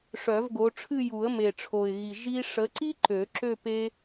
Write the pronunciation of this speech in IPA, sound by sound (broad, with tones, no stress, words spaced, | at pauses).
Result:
ʂœ˨˩˦vɡo˨˦ʈ͡ʂʰɨ˥˧ ju˨˩˦ə̯me˨˩ʈ͡ʂʰo˨˩ɪ̯ɣi˨˩ ʒi˥ ʂə˨˦ǀi˥ ǃø˨˩˦ǁø˥˧ pe˥